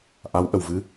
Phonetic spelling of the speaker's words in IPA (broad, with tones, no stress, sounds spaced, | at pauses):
ʔ a˧˥ w ʔ ə˨˩ w v ɨ˧˥